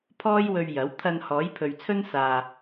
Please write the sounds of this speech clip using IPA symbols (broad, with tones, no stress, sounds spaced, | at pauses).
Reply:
pʰ ɔː˥ j w ɵ˧ ɥ j ɐ˨˥ w t̪ʰ ɐ˧ n h ɔː˨˥ j pʰ ɵ˨ ɥ t͡sʰ ɵ˥ n s aː˨